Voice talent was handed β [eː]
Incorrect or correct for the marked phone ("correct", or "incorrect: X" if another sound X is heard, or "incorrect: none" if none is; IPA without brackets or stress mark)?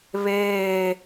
correct